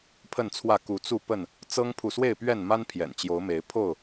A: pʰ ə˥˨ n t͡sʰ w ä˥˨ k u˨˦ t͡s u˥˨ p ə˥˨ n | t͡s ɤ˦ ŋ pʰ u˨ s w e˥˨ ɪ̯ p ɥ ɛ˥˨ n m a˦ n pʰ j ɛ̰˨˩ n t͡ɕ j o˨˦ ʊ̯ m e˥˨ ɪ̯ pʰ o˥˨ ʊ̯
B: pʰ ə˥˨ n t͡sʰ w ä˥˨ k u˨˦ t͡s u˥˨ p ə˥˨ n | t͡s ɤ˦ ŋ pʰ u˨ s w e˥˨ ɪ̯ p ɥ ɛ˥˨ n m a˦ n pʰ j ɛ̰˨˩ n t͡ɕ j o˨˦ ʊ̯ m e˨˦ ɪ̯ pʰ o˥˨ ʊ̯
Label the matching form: B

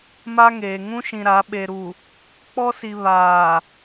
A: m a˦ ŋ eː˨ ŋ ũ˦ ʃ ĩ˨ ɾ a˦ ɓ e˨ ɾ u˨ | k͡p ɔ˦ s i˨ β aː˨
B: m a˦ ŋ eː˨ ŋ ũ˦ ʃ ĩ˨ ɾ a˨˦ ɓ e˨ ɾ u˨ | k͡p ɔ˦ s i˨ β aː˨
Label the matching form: B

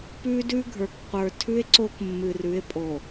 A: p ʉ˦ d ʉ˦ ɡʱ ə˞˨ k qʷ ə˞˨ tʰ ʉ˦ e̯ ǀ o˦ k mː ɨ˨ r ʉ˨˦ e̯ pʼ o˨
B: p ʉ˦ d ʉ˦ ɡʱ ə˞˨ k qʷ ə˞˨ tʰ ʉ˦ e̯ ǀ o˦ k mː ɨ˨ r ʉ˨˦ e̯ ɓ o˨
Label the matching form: A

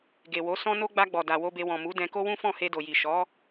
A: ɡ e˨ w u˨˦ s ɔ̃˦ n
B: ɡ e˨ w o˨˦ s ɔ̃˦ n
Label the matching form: B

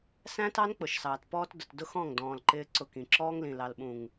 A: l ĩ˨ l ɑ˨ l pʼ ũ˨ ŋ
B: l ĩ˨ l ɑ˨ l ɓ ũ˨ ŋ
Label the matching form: B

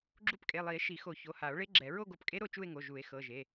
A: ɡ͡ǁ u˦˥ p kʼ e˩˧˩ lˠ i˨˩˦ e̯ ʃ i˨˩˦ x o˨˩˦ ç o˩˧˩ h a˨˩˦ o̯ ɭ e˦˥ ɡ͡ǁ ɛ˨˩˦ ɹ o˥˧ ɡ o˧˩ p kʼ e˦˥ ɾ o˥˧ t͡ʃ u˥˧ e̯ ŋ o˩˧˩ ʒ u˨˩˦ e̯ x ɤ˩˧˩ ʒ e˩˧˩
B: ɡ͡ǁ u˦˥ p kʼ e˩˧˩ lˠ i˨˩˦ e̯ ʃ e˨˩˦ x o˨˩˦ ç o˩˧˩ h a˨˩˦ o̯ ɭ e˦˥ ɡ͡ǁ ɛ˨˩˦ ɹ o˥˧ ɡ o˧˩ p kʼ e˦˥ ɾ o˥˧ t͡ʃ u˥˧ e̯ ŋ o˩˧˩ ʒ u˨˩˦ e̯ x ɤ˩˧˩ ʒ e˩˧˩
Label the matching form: A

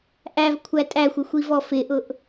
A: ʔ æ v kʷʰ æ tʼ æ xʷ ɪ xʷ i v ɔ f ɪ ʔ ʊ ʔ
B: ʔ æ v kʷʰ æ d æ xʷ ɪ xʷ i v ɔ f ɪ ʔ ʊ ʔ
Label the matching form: A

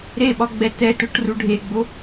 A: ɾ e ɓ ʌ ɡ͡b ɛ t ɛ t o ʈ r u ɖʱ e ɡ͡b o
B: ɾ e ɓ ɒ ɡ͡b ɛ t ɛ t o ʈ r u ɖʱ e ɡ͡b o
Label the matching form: B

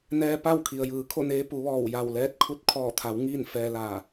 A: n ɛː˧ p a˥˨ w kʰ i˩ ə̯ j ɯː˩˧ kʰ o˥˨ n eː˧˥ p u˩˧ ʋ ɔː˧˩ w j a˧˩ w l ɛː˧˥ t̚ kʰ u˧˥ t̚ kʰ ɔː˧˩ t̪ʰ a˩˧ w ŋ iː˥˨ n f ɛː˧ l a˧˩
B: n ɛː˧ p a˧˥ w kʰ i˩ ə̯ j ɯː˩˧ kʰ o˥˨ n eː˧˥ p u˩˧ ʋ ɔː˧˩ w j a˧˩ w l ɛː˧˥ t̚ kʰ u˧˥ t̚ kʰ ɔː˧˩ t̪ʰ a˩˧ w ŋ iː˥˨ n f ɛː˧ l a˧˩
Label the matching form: A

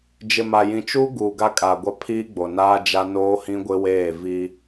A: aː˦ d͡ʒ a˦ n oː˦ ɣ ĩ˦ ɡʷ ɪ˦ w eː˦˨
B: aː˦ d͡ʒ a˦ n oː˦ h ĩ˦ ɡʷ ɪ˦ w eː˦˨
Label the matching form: B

